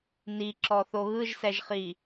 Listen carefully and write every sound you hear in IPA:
n i ǁ ɔ θ o ɣ ɯ ʒ s ɛ ʒ χ i

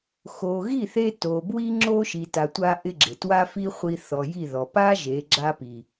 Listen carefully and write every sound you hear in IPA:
x o˨ ɣ i˦˨ θ e˧ t o˨ b w i˦ ŋ͡ǁ o˦ ʃ i˨ t a˨ tʷ a˧ ʔ ɪ˦ ɡ͡ǁ ɪ˨ t w a˦ f i˦ χʷ i˧ θ ɔ˨ j i˦˨ ð ɔ˨ p a˦ ʒ e˨˦ ɡ͡ǁ a˦ p i˨

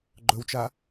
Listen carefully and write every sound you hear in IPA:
ɡ͡ǃ ɵ w t͡ʃ a

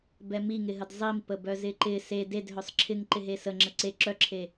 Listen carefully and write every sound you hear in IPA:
b ɛ m i ŋ ɪ ɦ ə d zˤ i m p ə b œ z ɪ ǃ ɪ s e d e d ɦ œ sˤ ǁʰ ɪ ŋ ǃ ɪ ɦ e s ə ŋ͡ǁ ə ǀ e ǁ œ ǁʰ e

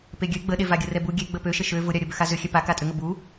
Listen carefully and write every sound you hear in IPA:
p e ɡʲ ø ɡ͡b ə ɗ e v a ɡʲ ə r ɛ b u ɡʲ e ɡ͡b ə p ø ʃ ə ʃ ø v ʊ ɾʲ a ɾʲ ə b ø x a z ʏ xʲ ɛ p a k a tʼ ʏ ŋ ə b u

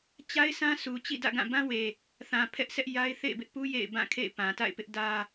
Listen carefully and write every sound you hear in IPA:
t͡ɕ a˦ ɪ̯ s ã˦ s u˨ t͡ɕ ḭ˦˨ d ä̰˦˨ ɡ ã˦˨ b ã˦ w e˨ | θ ã˨ pʰ ɛ˦ ʔ s ɛ˦ ʔ j a˦ ɪ̯ θ ḛ˦˨ ɪ̯ b ɪ˦ ʔ p u˦ j ḛ˦˨ ɪ̯ b ã˦˨ kʰ ḛ˦˨ ɪ̯ p ã˨ t a̰˦˨ ɪ̯ p ɪ˦ ʔ d ä˦

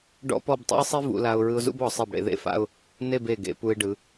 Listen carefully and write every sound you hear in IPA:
ɖ ɔ̰˥ p ɔ˥˧ b tˤ ṵ˥ ɪ̯ sˤ i˥ v ṵ˧ l a˧ ʊ̯ ɹ ɯ˧ ʊ̯ z ṵ˥˧ b ɔ˩˧ sˤ e˧˩ b ɽ ḛ˧ ð ḛ˥˧ f a̰˥˧ ʊ̯ | n e˥˧ b e˧˩ ɡ ḛ˩˧ p u˧ ɪ̯ ɖ ɯ˩˧

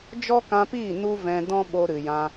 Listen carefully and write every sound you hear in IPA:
d͡ʒ ɔ˦ k ã˧ p iː˦˨ n u˦ v ɛ̃˧ d ɔ̃˦ ɓ o˧ ɾ ɨ˨ j ã˧

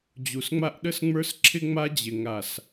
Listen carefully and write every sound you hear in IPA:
d͡ʑ u˨ s ŋ͡m a˦ ʔ ɗ ə˦ s ŋ͡m ə˞˦ s ǁʰ ɪ˦ ŋ͡m a˦ d͡ʑ ɪ˨ ŋ a˨ s

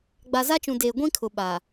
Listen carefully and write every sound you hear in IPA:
ɡ͡b a˨ z a˦ t͡ʃ ũ˨ d eː˨ ɡʷ ĩ˦ kʰ ʊ˨ ɓ a˨

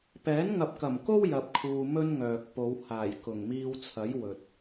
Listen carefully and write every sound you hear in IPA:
p ɛː˨˥ n ŋ ɐ˨ p̚ k ɐ˨˩ m k o˥ w j ɐ˨ p̚ kʰ uː˨ m ɵ˥ n ŋ œː˨ k̚ p o˨˧ w h aː˨˩ j k ʊ˨˩ ŋ m iː˧ w t͡sʰ ɐ˨˥ j w ɵ˨ t̚

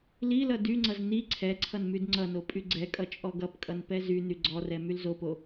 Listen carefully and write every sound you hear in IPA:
l i l ʌ d y ŋ͡ǀ ʌ z n i ǀʰ ɛ ǀʰ ʌ n m y d ŋ͡ǀ ʌ n o pʼ y ɡ͡ǀ ɛ kʼ ʌ t͡ʃʼ ɔ ɡ ʌ p kʼ ʌ n p ɛ z y n y ɡ͡ǀ ɔ r ɛ m y l z o p o

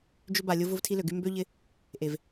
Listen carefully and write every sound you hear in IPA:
d͡ʒ ʏ˦ b a˨ lʲ ʊ˦ v ʊ˦ v tʰ i˦ l ø˨ ɡ y˦ m b ø˦ ʎ ɪ˧ | ʔ e˨ v

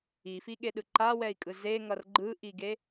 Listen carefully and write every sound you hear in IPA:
i f i ɠ e ɗ ɯ ǃ a w ɛ i̯ kʼ ɯ z e ŋ ʌ r ɡ͡ǃ ɯ ʔ i ɡ e

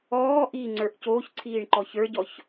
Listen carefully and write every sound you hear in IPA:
ɔː ʔ iː ŋ͡ǀ ə˞ ʔ c oː ç ǀʰ iː ɳ ǃ ɔ ç ə˞ ɟ ɔ ç

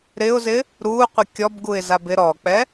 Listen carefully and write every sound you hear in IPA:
ɾ ɪ ʊ̯ z ɪ | ɾ u qʷ ɪ kʲ ɔ b ɡ u ɪ̯ z a b ɪ ɾ ɔ k͡p ɛ

